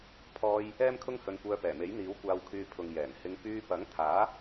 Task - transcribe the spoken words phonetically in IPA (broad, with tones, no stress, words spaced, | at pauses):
pʰɔː˧j | ɛː˥mkʰʊ˥ŋhɵ˧n kʷœː˧pɛː˨˩me˨˥j n̪iː˨˥wkʷaː˧wkʰyː˧ pʰʊ˨ŋjɛː˨˩n hɪ˧ŋ pyː˧pɐ˨˥ŋt̪ʰaː˨˥